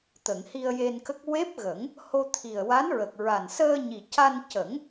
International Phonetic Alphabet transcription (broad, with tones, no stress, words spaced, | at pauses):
t̪ə˨˩˨ŋ hi˧ə̯je˧nkə˦˥k̚ we˦˥p̚ɣə˨˩˦ŋ | ho˧t̪ʰi˨˩ə̯wa˧˥nɹə˨˩k̚ ɹa˨˩nsəː˧ɲi˨˩ca˧n cə˨˩˦ŋ